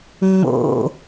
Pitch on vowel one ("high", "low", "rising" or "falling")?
falling